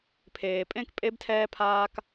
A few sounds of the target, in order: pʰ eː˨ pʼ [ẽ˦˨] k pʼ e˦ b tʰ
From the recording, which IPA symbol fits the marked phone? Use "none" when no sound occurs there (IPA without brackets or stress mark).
ẽ˦˨